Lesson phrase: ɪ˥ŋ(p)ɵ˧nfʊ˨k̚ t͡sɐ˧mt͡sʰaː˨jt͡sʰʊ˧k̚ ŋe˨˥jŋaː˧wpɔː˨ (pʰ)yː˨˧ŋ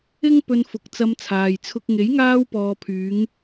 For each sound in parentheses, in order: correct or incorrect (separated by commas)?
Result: correct, correct